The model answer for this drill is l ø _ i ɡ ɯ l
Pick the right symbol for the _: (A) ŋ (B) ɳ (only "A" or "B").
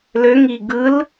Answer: A